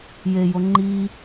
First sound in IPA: j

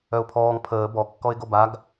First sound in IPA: œ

